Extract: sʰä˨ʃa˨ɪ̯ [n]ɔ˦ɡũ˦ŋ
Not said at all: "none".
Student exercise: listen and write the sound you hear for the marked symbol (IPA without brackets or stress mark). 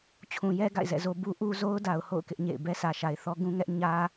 θ